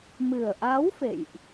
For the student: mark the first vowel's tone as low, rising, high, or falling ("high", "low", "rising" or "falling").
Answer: low